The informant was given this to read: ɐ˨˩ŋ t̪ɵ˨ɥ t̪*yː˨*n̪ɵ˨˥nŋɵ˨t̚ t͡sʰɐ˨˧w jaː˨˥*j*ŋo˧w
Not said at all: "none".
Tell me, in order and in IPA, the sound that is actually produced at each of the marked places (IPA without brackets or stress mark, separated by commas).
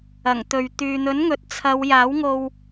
yː˨, w